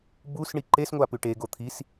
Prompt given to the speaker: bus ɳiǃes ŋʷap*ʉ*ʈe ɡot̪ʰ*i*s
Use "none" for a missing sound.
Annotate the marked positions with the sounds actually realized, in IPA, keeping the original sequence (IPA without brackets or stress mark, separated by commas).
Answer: ʉ, i